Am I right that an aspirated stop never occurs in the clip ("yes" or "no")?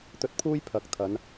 no